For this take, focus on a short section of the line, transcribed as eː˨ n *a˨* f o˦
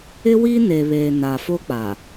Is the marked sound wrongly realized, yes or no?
no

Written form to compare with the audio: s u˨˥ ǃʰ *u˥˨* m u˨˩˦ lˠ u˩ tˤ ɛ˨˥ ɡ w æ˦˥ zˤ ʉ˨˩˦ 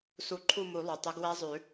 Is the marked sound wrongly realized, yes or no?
no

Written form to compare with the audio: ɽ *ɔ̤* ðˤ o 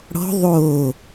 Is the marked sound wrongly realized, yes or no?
no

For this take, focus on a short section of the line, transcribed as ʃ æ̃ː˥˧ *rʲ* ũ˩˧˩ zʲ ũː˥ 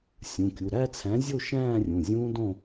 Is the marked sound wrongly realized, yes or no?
no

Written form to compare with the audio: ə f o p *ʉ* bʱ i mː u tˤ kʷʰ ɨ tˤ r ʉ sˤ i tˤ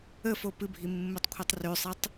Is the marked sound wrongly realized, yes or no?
yes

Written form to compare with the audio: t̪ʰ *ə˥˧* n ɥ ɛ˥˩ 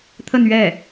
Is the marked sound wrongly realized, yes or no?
no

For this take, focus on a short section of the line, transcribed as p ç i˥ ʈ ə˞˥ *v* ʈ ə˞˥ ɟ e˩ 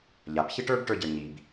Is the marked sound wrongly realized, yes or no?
yes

